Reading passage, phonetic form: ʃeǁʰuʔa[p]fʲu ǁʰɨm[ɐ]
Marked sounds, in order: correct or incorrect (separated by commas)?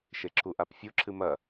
correct, correct